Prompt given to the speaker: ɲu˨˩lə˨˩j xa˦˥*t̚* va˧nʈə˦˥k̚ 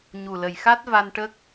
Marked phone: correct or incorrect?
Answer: correct